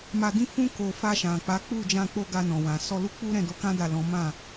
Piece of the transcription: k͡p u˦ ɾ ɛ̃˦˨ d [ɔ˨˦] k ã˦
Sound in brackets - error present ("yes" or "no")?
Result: yes